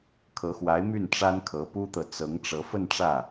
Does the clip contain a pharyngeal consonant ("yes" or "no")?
no